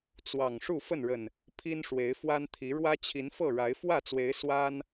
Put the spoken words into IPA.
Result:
t͡s w ɑ˨˩ ŋ ʂ u˥˨ f ə˥˨ n ɻ ə˨˩ n | pʰ i˦ n ʂ w e˨˦ ɪ̯ f w a˦ n t̪ʰ i˨˦ ɻ w ä˦ t͡ɕʰ i˨˦ n f ɤ˥˨ ɻ a˨˦ ɪ̯ f w ä˥˨ t͡s w e˨˦ ɪ̯ s w a˦ n

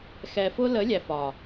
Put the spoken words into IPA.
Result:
x ɛ˨ f ʊ˧ l ə˨˦ lʲ æ˨ f ɒ˨

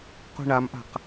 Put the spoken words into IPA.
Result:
q ṳ ɳ a m ʔ a̤ q

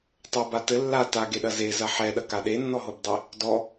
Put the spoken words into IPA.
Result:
tˤ o b a t ɘ lː a t a ɡ e ɗ ɐ z e z ɐ ħ ɛ ɗ ɐ k a ɗ e nː ɔ ɦ o b dˤ e | d ɔ

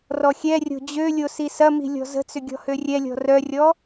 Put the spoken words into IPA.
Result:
r ɔ xʲ ɛ rʲ o̤ d͡ʑ ø lʲ o s i s ɐ m i̤ lʲ ɔ̤ z ə̤ t͡s ʏ ɡʲ ɔ̤ h ø rʲ ɛ lʲ ɔ̤ r œ rʲ ɔ

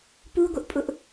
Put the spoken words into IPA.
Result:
p u ɡʷ ɪ ʔ pʼ ʊ ʔ

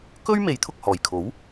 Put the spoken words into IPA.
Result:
k ɵ˥ ɥ m e˨˥ j t̪ʰ ʊ˨ k̚ h ɔː˨˩ j kʰ o˨˥ w

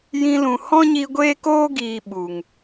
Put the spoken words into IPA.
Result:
j ĩ˧ l ũ˨ h ɔ̃˦ ɲ i˧ ɡʷ eː˦ k oː˦ ɡ iː˨ ɓ u˨ ŋ

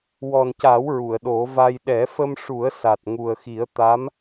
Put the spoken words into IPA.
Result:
w ɔ˨˩ n c a˨˩˦ w ɹ u˨˩˨ ə̯ ɗ o˨˩˦ v a˧ j ɗ ɛ˨˩˦ f ə˧ m ʂ u˨˩˦ ə̯ s a˨˩ t̚ ŋ u˨˩ ə̯ x i˨˩˦ ə̯ t̪ a˧˥ m

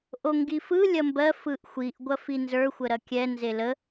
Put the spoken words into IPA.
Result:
ʔ o ŋ ɡ i f ɯ lʲ ɐ m b ɜ f ɯ ʔ xʷ i ʔ ɡʷ ɐ f i n z ə˞ xʷ ə ɾ ɐ kʲ ɛ n z e l ə

